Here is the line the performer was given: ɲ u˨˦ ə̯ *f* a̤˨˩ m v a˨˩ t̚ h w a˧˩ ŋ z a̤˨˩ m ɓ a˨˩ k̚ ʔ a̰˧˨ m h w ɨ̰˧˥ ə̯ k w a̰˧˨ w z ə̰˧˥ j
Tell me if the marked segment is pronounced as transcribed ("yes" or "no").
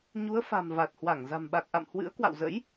yes